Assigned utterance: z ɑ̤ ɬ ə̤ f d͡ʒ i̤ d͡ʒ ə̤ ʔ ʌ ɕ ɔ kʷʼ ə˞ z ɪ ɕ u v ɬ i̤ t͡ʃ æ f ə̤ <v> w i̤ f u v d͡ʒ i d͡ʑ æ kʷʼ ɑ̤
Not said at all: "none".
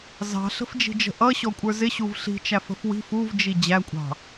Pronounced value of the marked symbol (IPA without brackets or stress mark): f